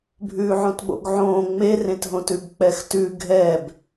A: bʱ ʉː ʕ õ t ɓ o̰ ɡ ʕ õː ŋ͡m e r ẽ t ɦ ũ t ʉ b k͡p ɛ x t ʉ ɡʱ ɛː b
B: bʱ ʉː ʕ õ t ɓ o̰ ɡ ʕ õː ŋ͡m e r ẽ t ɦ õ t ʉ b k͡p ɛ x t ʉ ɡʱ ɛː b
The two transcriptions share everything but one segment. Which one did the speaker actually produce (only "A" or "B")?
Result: B